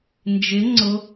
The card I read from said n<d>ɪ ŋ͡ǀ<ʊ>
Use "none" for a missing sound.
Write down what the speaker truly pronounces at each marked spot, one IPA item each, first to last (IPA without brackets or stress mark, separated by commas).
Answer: d͡ʒ, ʊ